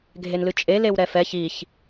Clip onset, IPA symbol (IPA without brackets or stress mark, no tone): ɡʱ